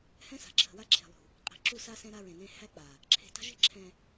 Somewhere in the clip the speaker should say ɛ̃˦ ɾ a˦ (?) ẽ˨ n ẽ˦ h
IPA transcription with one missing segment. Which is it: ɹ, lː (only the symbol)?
ɹ